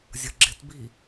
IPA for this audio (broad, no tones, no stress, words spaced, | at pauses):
zʲʌɡ͡ǁɪtbi